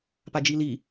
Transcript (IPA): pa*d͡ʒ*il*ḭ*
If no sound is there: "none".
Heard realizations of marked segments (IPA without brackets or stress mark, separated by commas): d͡ʒ, i